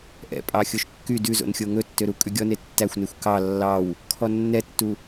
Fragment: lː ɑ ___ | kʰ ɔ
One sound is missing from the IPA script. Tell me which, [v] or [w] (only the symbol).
w